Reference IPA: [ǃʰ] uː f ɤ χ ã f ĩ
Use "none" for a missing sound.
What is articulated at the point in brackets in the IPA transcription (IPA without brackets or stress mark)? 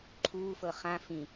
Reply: ǃʰ